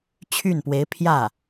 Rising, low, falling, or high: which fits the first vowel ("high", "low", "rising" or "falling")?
falling